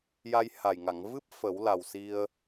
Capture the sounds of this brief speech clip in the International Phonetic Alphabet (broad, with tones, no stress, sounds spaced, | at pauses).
j a˧ j h a˨˩ j ŋ a˨˩˨ ŋ v ɨ˦˥ p̚ f ə˨˩˦ w l a˨˩ w s i˧ ə̯